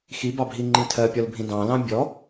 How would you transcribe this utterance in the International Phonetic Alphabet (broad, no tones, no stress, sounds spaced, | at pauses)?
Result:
x i b ɑ bʱ i ŋ͡ǃ ĩ tʰ ɜ pʲ ɔ l bʱ ĩ d ɑ̃ l ɑ̃ bʲ ɔ